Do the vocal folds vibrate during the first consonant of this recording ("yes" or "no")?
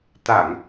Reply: no